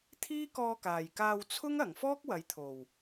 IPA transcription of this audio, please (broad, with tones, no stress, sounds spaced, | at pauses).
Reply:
t̪ʰ iː˥ k ɔː˧ k aː˨˩ j k aː˧ w t͡sʰ ʊ˥ ŋ ɐ˨˩ ŋ f ɔː˥ k̚ w ɐ˨˥ j t̪ʰ o˨˩ w